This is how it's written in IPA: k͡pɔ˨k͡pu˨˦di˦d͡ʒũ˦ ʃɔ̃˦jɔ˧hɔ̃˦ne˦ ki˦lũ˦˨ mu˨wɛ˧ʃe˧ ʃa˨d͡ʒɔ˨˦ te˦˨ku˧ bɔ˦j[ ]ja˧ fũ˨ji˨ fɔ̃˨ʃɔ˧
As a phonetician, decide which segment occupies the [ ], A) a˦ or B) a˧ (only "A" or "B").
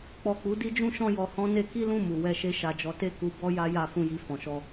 A